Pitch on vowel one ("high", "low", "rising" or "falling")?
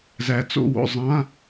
low